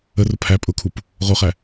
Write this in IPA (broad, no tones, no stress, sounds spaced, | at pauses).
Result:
ə r ʊ pʰ æ pʼ ʊ kʰ u p | ʁ o χ æ